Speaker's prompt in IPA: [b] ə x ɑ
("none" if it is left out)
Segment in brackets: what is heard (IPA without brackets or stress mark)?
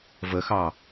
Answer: v